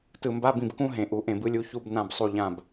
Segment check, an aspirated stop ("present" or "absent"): absent